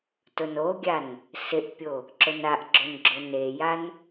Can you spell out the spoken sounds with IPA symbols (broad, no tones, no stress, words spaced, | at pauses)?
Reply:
tʊnoɡʲan | sɪʔpʲo | ǁʊnaʔɡ͡ǁon ɡ͡ǁʊnejan